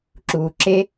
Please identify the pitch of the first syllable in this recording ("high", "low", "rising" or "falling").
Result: low